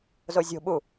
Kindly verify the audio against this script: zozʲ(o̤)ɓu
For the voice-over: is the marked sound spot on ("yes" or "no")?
yes